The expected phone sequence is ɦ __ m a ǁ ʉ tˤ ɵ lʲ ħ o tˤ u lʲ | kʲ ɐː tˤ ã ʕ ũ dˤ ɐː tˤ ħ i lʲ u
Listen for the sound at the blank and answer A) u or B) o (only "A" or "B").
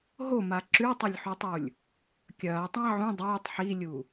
B